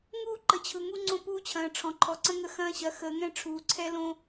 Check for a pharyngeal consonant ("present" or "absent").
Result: absent